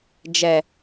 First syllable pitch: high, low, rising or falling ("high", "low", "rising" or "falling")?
low